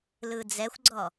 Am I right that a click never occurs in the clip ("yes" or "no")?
no